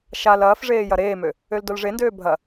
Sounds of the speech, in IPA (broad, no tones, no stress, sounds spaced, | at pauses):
ʃ a l ɐː f ʐ eː j ɐ ɾ eː m ø | ø l d o l ʐ e n d øː bʱ ɐ